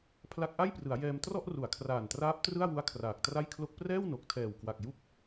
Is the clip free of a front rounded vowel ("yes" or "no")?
yes